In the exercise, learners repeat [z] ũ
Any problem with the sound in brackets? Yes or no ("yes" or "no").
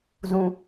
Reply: no